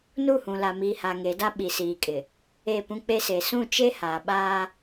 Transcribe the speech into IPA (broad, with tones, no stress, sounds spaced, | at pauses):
n u˦˨ h ũ˨ l aː˨ m iː˨ h a˨ ŋ e˨˦ d a˦ ɓ i˨ s iː˨ kʼ ɪ˨ | e˦˨ p ũ˦ k͡p e˦ s e˨ s ũ˦˨ t͡ʃ e˦ h aː˨ ɓ aː˦